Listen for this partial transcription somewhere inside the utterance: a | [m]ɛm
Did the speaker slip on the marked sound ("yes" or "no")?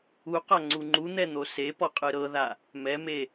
no